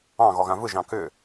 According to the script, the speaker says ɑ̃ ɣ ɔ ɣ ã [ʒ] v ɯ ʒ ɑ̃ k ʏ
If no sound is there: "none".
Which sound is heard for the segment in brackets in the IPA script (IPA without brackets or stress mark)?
none